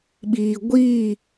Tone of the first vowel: low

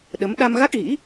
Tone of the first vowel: rising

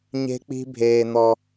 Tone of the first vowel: high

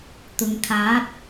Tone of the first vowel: low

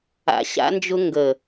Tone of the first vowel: low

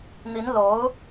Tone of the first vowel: rising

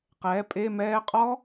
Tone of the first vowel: rising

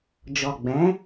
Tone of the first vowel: low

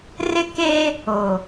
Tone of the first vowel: high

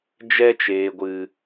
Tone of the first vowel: high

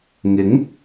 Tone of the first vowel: rising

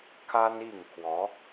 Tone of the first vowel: high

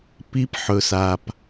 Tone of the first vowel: high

